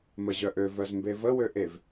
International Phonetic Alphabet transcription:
məʑœʔø vœzmbevə wøʔev

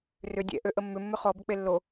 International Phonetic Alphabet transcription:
rʏ dʲɛ̰ʔøʔə mːʏmːʏ χɔbʏ k͡pelːo

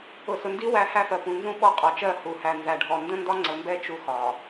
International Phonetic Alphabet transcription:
ʊ˨sʊ˨ndi˦ wæ˦hæ˦fɜ˨ pũ˨nzũ˦ ɓɔ˦qʼɔ˨t͡ʃɜ˦˨ hu˨hæ˨ nzæ˨ɖʱɔ˨ ndə̃˦ndɒ˦ŋ͡ǀə˨mbɛ˦ t͡ʃu˦xɒ˨

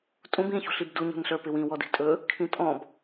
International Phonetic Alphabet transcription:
tʼũb ĩ çṳɬibdu ɲṳnɬə˞pɪwĩ wɔdi̤tʼɵ | kʰĩtʼɔ̃b

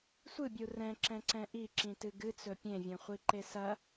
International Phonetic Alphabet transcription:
sʷɨbʲu rɛ̃ǁɛ̃ǀɛ̃ ʔiǁĩtɨ ɡɨt͡sɵ pʲẽvʲɛ̃χʷiǃe sɐ

